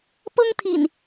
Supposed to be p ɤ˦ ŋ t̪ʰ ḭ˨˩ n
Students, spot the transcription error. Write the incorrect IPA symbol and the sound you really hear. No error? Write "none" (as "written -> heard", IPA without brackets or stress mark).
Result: none